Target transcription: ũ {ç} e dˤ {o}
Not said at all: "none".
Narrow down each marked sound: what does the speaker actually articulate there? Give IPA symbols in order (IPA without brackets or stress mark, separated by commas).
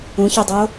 ç, o